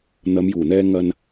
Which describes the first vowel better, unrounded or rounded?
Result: unrounded